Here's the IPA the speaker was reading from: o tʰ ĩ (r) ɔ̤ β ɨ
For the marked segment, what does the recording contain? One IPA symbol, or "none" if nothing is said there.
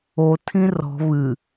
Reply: r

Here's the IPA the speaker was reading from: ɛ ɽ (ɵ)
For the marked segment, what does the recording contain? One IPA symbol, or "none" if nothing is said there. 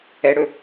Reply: ɵ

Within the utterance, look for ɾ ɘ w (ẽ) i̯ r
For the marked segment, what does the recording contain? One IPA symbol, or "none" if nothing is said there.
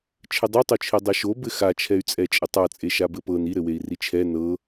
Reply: e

